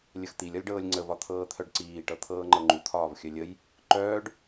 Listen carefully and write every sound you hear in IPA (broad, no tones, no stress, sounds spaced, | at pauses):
lʲ ə x t̪ i lʲ ɒ lʲ ɖ ɤː lʲ ŋ͡ǀ ə v ɒ t̪ʰ ɤː t̪ʰ œ ɖ ǀ iː ʈ ɤ t̪ʰ ɤː ŋ͡ǃ ɤ ŋ͡ǃ u t̪ʰ ɒː v xʲ œ lʲ ə j | ǃ œː ɖ